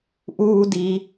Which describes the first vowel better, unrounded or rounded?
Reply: rounded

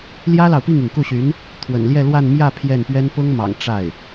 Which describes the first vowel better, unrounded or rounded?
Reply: unrounded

